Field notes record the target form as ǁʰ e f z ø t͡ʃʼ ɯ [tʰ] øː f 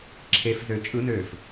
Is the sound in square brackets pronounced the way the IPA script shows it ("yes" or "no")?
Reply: no